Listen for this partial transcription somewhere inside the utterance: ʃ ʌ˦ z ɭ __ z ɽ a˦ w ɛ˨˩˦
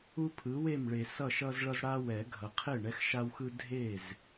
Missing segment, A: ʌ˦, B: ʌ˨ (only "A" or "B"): A